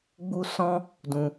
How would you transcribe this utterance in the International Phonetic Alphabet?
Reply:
ɡ͡b u˦ s ɔ̃˦ | d ũ˧

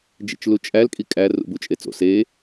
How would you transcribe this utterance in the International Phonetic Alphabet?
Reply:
d͡ʒ ḛ t͡ʃ l u t͡ʃʼ æ l kʼ i kʼ æ r ṵ b u t͡ʃʼ e t͡s o̰ s e

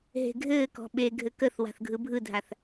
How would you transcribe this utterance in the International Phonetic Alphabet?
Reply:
ɦ e̤ ɡʱ ɘː k ɔ̤ ɓ e ɡʱ ɘ k ə θ w a̤ θ ɡʱ ɯ bʱ ɯ dʱ a θ

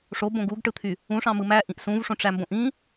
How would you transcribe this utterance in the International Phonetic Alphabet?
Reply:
ʂ o b õ ɡ u ɡ ʈ ɯ t̪ʰ y | ũ ʂ ɑ̃ m ɯ m æ ʔ ĩ ʔ s ũ v ʂ õ ʈ͡ʂ æ m b õ ʔ ĩ

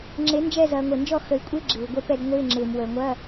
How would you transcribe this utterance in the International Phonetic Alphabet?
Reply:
ŋ͡ǁ e˨˥ n d͡ʒ ɛ˦˨ z ɐː˨ ŋʷ e˨ n d͡ʒ ɔ˦˨ x ə˨ i̯ kʷʼ ɪ˧˥˧ ɡ͡ǁ ɪː˨ u̯ ɡʷ ɛ˧˥˧ p ɛ˦˨ d ŋʷ ɪː˧˥˧ ŋ͡ǁ ɪː˨ m w əː˨ ŋʷ ɐ˧˥˧

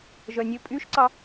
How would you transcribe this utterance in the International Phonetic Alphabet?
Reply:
ʒ œ nʲ ɵ pʼ y ʃ ǀ ɑ

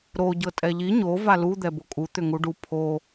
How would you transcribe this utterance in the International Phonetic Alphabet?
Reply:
ɾ o ɟ ɤ tʼ ɛ ʎ i ɲ o v a l u d̪ ɛ b o kʼ u t̪ ʏ ŋ u ɖ u pʰ o

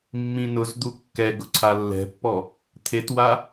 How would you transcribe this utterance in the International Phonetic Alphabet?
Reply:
mː ĩ n ʊ z d̪ u kː ɛ ɡ ʊ ǀʰ a lː ɛ̤ pː ɔ | t̪ʰ e t w a

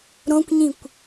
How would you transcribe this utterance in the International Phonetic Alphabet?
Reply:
ɾ õ kʷ ɲ ĩ kʷ

